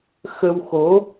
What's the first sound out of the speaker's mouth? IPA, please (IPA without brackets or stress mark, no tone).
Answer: x